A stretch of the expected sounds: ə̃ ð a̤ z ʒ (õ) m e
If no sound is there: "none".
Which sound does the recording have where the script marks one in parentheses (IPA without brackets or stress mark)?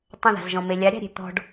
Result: ɔ̃